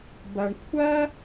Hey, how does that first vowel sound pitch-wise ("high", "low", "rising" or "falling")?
low